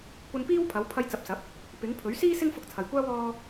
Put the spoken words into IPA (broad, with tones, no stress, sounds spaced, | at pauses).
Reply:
kʷ ɐ˧ n p iː˥ w pʰ ɐ˨˥ w pʰ ɐ˧ j t͡s ɐ˨˥ p̚ s ɐ˨˥ p̚ | p ɪ˨˥ ŋ pʰ ɵ˨˥ ɥ s iː˥ s ɪ˥ ŋ f ʊ˧ k̚ t͡sʰ ɐ˨ j kʷ aː˥ w ɔː˥